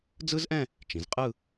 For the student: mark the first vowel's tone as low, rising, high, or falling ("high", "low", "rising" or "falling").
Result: high